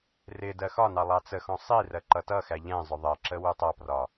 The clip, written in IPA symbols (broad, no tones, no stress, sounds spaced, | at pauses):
r ɪ d ɜ x ɒ n ɑ lˠ ɑ t͡s ə x ɔ̃ sˤ i r ɜ ǃ ʌ t ʌ x æ ʎ ɛ̃ zˤ ʊ ðˤ ɜ ǁ ə w u tˤ ʌ p r ɒ